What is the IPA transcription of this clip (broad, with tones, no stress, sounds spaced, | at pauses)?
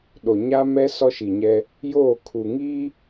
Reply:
ɗ o˨ ɲ a˦ m ɛ˦ s ɔ˦ ʃ i˨ ɲ ɛ˦ | j oː˦˨ kʰ u˨ ŋ iː˦